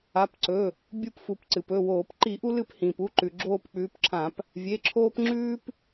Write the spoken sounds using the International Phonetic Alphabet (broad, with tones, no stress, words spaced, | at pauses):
a˩˧˩p ǀɵ˩˧˩ | bʲu˦˨pfu˩p ǀɨ˩pɵ˩˧˩woː˧˩˧p ǃi˧˩˧ʔu˦lɨ˦˨p hĩː˩pu˩˧˩ǃʉ˩ ɡ͡ǁoː˦˨pk͡pʉː˨˦pǁʰã˧˩˧p | vʲe˩˧˩ǁʰoː˦p ŋ͡ǁʉː˦p